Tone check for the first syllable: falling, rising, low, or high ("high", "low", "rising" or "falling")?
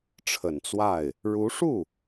low